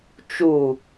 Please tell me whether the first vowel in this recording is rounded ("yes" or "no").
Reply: yes